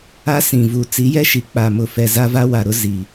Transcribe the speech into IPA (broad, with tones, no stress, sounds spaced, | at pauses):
a˦ s ĩ˨ v u˨ t͡s i˨˦ j ɛ˦ ʃ i˨ k͡p a˨ m ʊ˨ f ɛ˨ z a˦ v a˦ w a˨ ɾ ʊ˦ z i˨